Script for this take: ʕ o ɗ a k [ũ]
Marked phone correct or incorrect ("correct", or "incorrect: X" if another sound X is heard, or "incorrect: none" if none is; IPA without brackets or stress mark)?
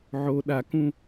correct